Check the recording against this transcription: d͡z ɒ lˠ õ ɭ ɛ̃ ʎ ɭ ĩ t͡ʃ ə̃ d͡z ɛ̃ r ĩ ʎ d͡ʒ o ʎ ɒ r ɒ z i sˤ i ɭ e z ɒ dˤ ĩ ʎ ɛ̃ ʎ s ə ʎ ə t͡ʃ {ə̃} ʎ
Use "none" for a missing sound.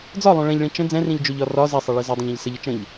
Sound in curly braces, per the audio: ə̃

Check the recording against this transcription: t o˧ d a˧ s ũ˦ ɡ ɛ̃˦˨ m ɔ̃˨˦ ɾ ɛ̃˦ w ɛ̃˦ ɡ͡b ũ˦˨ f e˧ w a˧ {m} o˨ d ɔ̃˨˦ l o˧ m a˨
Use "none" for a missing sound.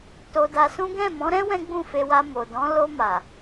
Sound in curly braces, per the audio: m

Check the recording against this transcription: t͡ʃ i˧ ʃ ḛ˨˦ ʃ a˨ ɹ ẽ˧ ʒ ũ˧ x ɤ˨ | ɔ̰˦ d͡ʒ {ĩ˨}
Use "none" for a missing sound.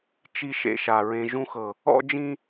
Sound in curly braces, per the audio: ĩ˦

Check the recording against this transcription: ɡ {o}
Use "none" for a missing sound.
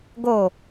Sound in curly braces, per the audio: o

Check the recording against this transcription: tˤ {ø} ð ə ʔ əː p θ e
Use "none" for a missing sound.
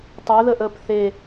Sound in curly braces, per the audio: ø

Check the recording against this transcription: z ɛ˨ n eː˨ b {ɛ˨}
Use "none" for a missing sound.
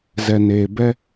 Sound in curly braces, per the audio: ɛ˦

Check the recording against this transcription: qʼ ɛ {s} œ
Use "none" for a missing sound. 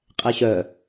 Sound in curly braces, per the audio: ɕ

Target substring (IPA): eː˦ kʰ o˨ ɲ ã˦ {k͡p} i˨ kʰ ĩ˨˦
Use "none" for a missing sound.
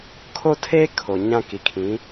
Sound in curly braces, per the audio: k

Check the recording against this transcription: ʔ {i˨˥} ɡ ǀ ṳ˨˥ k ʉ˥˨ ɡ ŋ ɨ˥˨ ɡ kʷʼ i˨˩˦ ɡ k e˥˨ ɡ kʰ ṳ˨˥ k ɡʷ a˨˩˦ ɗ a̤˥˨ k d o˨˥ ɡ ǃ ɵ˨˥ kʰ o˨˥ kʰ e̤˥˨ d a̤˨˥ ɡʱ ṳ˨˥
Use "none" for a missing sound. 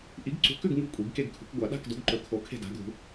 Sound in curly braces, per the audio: i˨˥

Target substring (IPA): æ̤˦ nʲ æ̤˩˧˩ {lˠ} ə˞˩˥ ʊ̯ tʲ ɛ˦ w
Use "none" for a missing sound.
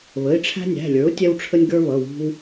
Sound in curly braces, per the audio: lʲ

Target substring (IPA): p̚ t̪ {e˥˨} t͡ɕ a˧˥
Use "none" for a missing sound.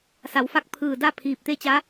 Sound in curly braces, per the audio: e˥˨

